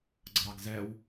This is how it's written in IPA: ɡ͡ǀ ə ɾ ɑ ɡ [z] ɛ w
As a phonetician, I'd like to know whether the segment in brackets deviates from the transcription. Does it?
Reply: no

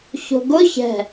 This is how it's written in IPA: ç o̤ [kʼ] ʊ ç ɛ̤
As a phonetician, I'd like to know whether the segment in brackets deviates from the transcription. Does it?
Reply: yes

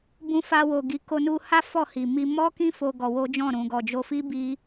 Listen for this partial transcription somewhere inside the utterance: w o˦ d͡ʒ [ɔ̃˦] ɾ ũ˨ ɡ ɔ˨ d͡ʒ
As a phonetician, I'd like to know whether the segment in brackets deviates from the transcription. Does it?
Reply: yes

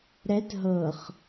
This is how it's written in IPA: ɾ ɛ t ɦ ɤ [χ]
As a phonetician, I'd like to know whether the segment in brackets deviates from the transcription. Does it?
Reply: no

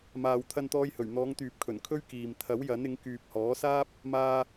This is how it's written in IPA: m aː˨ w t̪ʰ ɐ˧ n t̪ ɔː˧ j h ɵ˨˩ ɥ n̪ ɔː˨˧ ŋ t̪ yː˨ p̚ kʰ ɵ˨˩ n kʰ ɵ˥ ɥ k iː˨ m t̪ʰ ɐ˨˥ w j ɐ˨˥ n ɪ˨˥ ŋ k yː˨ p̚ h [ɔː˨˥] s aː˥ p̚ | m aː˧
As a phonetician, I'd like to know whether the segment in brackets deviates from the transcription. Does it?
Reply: no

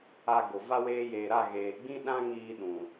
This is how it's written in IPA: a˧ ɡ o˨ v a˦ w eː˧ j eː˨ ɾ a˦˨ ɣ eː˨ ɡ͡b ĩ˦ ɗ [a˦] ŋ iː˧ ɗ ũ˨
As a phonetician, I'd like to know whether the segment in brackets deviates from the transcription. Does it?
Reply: yes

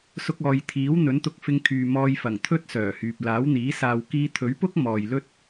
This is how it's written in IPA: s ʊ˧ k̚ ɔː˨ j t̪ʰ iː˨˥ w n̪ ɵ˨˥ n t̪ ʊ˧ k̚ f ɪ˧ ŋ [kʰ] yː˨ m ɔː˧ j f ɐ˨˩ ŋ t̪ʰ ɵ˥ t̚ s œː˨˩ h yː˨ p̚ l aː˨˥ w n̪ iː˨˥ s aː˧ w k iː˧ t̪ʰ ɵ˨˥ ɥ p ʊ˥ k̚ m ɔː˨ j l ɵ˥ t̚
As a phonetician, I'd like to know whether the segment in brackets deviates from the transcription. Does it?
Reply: no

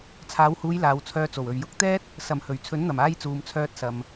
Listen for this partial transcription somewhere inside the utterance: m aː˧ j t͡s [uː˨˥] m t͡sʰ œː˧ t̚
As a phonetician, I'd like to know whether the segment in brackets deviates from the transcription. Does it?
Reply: yes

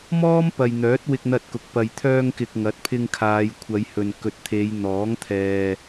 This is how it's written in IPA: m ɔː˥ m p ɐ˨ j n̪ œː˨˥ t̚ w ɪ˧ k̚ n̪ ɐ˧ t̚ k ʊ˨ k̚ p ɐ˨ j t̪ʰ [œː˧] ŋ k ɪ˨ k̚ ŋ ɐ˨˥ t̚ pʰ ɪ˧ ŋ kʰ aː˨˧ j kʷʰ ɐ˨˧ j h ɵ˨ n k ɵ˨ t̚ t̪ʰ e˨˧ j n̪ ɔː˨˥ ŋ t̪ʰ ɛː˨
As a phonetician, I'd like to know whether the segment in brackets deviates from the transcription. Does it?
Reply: no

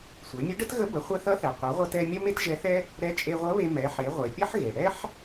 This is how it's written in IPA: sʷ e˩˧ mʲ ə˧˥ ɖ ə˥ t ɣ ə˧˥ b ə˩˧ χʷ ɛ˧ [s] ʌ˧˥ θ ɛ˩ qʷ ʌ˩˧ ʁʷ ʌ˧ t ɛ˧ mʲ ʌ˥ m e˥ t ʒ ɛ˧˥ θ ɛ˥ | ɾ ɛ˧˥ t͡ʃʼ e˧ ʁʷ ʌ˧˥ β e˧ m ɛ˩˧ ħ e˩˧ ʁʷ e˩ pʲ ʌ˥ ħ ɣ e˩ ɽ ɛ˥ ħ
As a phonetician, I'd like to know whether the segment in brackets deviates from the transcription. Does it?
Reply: yes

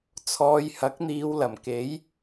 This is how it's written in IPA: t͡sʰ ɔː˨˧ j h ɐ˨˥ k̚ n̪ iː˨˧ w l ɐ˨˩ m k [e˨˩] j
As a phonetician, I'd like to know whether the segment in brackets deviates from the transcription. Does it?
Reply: yes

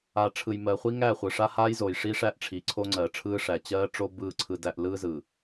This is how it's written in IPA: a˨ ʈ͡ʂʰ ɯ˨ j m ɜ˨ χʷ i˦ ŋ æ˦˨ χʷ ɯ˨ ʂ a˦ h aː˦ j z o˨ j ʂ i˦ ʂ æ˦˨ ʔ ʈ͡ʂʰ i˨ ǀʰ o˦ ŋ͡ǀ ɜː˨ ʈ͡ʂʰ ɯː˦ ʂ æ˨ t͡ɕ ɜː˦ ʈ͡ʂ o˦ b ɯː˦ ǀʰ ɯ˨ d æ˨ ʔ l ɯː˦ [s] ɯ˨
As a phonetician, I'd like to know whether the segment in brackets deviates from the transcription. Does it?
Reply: yes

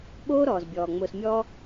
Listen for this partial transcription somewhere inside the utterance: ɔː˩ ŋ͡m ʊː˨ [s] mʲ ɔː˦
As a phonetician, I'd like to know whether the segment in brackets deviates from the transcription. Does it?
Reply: no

